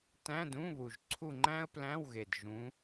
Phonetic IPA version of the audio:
tæ̃˧˥˧d ũ˧˥˧βu˨˩ʒǀʰu˦˨ŋ͡ǃæ̃˥ə̯ plæ̃˧˥˧wɣe˨˩d ʒũ˨˦

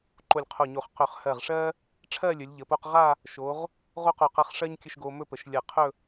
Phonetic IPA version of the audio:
ǃo˧˩lʲqʰo˧˩ɲo˧˩χ qɵ˧˩χhɜ˧˩ʁʂɜ˥ | ʈ͡ʂʰɜ˥˧lʲɵ˩˧lʲʎə˩˧po˧q ʁa˥˧ | ʃo˩˧ʁ | ʁo˥qo˧˩qɜ˧χʂɜ˥ɲ kʲə˥˧ʃɡo˧ mɵ˥pə˩˧ʃ lʲɜ˧˩qʰɵ˥˧

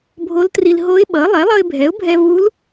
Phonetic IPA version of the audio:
bʱo˧˥ltri˧l ɦo˧˥ɪ̯ɓʌ˩˥ lˠɛ˩˥lˠʌ˧ɪ̯bʱɛ˩˥ʊ̯bʱɛ˧ vu˧˥l

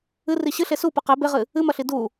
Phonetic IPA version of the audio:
ɨri ɕɨɬe supɨ qe beʁɨ | ɨmɐɬi du

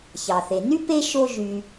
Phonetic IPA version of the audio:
çɑ˩θe˩ny˥ pe˥ʃo˦ ʒy˨

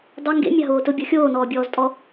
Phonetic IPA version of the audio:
dˤɘ ŋɡḛ mʲaɦoːtʊbʲɔ xʲoːnɔːbʲɔːztʼɔ

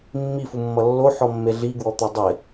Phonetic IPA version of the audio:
mːifumːʌ lːoħɔmːe ɮiɡwɔt̪u dˤɪ

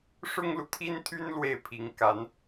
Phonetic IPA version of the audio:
ʂʊ˥ŋlu˨t̪ʰi˥nt̪ʰy˥n lwe˥˩ɪ̯pʰi˧˥ŋ ka˧˥n

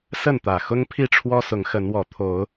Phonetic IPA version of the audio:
sə˥˨nt̪ä˨˩ xʊ˦ŋpʰi˥˨ʈ͡ʂʰwɔ˦ sʊ˨˦ŋxə˨˦nwɔ˨˩ t̪ʰo˨˦ʊ̯

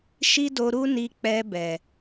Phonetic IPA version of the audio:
ʃi˦do˧ ɾu˦ni˧ k͡pɛ˧bɛ˨

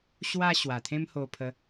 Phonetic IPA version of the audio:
ɕwa˧ ɕwa˨˩t̪ʰẽ˦mho˧pʰə˧

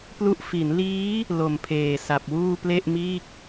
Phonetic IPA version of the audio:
plu˦˥ʔ fi˩˦nliː˦˥ | lo˨˩mpʰeː˨˩sa˨˩p̚wuː˥˩ ple˥˩ʔmiː˥˩k̚

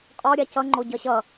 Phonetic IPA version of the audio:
qʼɔɾʲa cʌŋ͡ǃo ɟʌɕʌ

